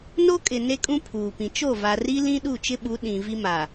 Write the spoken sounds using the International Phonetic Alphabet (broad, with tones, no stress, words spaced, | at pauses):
no˦kʼɪ˨ ne˦kʼũ˦pʰuː˨pĩ˨ t͡ʃo˦˨va˨ri˦ lĩ˦ɗu˦˨t͡ʃɪ˦ ɓu˨˦ ɗĩ˨ vi˦ma˨